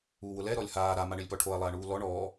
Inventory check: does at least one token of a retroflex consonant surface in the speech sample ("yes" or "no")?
yes